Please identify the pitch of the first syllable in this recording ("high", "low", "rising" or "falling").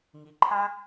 low